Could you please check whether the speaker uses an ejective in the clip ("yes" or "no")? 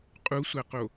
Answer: yes